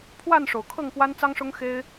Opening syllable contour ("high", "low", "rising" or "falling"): falling